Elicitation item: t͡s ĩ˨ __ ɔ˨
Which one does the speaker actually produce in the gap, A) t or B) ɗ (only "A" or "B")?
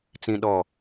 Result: B